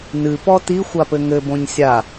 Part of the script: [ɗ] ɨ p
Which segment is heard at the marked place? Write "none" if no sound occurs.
n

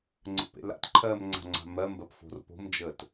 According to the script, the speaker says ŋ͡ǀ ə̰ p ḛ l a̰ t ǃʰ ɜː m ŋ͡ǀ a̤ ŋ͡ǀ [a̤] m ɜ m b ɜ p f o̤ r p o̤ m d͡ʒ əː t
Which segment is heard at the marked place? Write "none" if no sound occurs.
a̤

